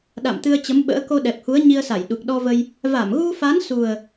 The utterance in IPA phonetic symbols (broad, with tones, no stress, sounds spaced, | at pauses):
ɗ a̰˧˨ m t̪ ɨ˧ ə̯ t͡ɕ ə˨˦ m ɓ ə̰ː˧˥ k o˧ ɗ ɛ˨˩ p̚ h u˨˦ ə̯ ɲ i˧ ə̯ s a˧˩ j ɗ u˨˩ k̚ ɗ ɔ˧ v ə˧ j | v a˧˩ m ɣ u˧ f a˨˦ n s u˨˩ ə̯